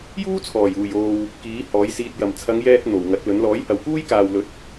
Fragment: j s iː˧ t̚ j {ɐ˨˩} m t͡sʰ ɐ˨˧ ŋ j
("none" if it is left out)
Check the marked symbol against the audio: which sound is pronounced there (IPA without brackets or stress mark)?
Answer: ɐ˨˩